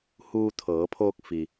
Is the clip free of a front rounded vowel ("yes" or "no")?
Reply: yes